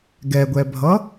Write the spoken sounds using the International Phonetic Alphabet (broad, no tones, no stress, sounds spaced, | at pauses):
ɡ ɛ ɡʷ ɛ bʱ ʌ